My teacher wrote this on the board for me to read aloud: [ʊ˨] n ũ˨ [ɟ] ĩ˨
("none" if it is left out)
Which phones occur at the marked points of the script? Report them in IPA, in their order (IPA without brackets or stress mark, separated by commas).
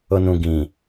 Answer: ʊ˨, ɡ